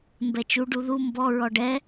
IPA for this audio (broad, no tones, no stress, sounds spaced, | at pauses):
m b ɛ t͡ʃ u ɖ u ð u m b ɔ ɹ ɔ ɖ ɛ